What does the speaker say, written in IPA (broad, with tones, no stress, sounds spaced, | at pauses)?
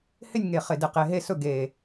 h ɪ˥˨ nʲ ŋ e˨˩ χ ɪ˨˩ d ɪ˨˩ q e˩˧ ɦ e˥˨ s ɵ˥˨ ɡ e˨˩